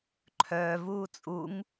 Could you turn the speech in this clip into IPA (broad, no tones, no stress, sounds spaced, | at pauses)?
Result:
ǃʰ œː v uː t͡sʼ u ŋ